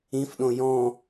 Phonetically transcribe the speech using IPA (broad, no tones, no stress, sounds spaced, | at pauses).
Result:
ĩ f ɗ õ j ɔ̃